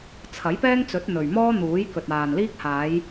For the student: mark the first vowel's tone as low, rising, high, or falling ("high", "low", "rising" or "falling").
rising